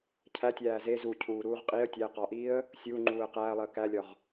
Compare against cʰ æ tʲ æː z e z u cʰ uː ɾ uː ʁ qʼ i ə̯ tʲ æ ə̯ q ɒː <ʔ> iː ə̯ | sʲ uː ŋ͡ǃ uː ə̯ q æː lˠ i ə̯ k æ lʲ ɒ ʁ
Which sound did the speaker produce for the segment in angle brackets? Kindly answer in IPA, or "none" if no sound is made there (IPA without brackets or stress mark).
ʔ